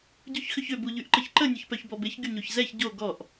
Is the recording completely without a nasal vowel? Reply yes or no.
yes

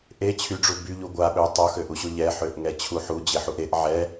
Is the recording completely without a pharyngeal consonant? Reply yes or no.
no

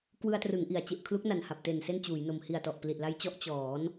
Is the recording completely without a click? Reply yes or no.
yes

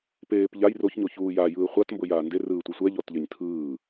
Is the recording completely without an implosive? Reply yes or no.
yes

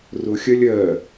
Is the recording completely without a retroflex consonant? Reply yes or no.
yes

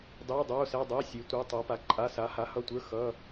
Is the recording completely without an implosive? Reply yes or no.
yes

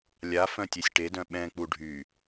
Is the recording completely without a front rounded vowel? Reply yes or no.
no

